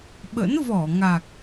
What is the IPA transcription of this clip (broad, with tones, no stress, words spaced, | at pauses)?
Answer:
ɓə̰˧˥n vɔ˧˩ ŋa˨˩k̚